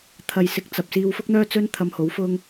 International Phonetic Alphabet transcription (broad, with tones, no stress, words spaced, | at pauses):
t̪ʰɐ˨jsɪ˨˥k̚t͡sɐ˨p̚ siː˧wfʊ˥k̚n̪œː˥t͡sɵ˥n t̪ʰɐ˧mho˨˥wfʊ˥ŋ